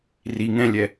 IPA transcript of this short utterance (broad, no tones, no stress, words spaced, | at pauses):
ri ŋɛ̃lʲɛ